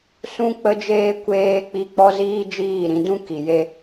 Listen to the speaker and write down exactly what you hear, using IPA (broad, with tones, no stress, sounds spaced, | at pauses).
s ũ˧ k͡p ə˧ d͡ʒ eː˧ kʷ eː˧ k͡p i˧ k͡p ɔ˦ z iː˦ d͡ʒ iː˦˨ ɾ ĩ˧ d ũ˦ k i˨ j e˧